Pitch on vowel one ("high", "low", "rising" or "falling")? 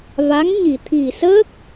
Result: rising